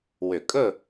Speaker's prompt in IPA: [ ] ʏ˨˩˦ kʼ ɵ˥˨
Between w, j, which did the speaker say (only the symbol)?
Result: w